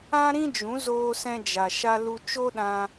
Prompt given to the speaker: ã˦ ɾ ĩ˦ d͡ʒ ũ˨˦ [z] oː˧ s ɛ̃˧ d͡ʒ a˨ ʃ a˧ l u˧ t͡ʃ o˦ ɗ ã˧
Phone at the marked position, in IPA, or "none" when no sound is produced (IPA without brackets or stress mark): z